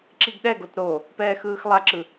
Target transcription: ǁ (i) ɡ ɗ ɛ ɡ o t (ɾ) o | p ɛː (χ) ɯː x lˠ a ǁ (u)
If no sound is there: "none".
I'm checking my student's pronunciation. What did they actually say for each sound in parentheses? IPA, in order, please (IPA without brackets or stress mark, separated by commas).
i, ɾ, x, ɯ